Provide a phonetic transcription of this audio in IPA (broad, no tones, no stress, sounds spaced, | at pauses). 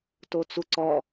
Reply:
t o t͡s u ǀ ɔ